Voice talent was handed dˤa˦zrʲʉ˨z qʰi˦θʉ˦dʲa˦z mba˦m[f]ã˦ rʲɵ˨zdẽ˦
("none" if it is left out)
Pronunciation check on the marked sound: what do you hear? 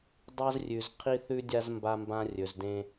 b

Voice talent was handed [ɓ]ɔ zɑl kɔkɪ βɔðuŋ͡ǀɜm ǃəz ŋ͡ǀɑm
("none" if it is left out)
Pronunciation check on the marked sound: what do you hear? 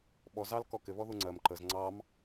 ɓ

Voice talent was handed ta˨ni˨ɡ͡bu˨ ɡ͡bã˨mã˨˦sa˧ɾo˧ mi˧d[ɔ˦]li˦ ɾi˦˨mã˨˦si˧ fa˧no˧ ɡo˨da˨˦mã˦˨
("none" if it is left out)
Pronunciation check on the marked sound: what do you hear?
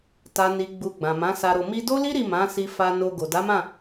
o˦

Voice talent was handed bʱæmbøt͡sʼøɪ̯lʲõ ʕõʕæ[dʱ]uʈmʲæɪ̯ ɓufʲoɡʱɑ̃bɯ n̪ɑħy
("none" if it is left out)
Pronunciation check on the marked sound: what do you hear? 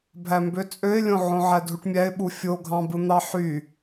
dʱ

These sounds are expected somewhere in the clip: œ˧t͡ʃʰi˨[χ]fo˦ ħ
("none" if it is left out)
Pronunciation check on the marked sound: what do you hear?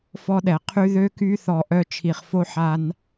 χ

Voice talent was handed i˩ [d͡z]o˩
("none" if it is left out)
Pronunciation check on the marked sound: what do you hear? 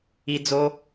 d͡z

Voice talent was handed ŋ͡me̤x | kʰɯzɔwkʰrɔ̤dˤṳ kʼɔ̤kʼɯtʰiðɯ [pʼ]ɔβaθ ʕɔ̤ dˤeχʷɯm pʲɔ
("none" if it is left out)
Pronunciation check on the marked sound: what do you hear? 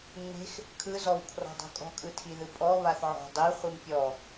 pʼ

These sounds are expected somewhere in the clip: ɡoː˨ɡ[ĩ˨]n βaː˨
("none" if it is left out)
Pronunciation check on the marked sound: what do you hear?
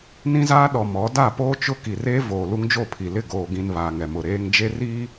ĩ˨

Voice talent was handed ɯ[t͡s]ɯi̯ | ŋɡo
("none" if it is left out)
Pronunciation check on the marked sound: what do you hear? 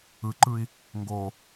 ǃ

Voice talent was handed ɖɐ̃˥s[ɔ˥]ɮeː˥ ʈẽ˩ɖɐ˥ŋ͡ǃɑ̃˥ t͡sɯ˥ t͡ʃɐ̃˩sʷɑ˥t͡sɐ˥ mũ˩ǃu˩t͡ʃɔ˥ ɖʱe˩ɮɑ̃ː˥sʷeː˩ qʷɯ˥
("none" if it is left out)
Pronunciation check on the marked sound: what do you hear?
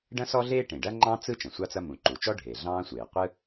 ɔ˥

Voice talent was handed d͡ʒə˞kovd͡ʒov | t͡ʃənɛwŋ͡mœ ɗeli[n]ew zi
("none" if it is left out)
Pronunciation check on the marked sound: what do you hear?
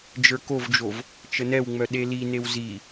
n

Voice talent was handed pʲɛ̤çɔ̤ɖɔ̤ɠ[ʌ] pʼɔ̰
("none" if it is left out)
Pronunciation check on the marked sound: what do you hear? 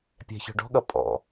ʌ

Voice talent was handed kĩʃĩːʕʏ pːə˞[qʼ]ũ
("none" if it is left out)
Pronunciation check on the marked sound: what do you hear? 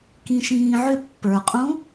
qʼ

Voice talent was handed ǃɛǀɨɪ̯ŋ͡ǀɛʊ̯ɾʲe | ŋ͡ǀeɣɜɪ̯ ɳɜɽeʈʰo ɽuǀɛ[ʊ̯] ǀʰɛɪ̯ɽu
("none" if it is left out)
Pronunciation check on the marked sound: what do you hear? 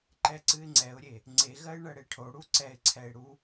ɪ̯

